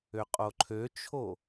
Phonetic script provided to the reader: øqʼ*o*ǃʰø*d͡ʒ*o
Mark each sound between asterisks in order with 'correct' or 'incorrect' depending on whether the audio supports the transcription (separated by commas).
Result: correct, incorrect